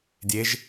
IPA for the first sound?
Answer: dʲ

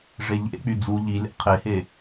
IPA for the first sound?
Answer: ʐ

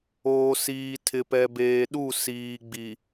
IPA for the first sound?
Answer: oː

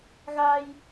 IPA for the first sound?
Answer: ɣ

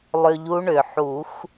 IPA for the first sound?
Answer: lˠ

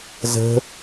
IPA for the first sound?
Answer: z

